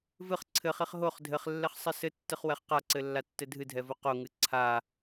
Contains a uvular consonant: yes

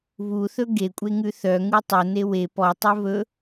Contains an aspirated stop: no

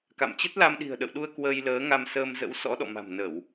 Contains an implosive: yes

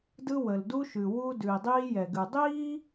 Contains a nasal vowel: no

